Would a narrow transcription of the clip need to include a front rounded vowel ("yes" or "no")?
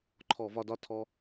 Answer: no